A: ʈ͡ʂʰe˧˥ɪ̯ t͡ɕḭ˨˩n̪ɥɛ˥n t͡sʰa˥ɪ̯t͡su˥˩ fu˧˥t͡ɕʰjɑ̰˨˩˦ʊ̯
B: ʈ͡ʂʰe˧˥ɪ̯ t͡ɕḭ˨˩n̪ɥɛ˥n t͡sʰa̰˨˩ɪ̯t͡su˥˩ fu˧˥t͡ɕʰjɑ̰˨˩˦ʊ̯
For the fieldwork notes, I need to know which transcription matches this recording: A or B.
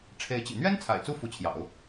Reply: B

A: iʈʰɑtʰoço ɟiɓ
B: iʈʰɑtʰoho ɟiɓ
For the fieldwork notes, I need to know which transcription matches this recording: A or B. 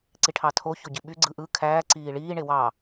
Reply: A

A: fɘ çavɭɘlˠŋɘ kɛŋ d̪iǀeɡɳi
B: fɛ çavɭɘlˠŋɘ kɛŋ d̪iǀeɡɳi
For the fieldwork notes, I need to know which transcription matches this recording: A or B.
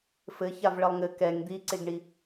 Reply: A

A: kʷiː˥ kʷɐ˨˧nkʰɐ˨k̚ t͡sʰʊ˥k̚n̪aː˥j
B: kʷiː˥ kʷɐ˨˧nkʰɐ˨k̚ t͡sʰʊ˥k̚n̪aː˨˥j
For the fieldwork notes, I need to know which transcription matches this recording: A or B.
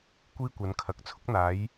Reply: B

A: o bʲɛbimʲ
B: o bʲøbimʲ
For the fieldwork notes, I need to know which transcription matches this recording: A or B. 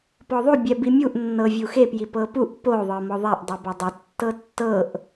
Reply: A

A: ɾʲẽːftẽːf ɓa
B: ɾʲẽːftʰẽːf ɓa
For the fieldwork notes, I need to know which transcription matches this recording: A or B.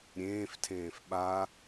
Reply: B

